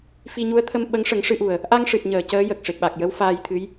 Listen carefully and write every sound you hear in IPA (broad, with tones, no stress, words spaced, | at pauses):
fi˧ɲu˧˥ə̯t̪ʰə˧m ɓə˧˥ŋʂə˨˩˦ŋ ʂɨ˧ʔu˨˩ə̯ | ʔa˧ŋʂɨ˨˩t̚ɲəː˨˩˨ cəː˧˥jə˨˩k̚ʂe˨˩k̚ɓa˨˩k̚ jə˧˥w faː˧jt̪ʰɨ˧˥j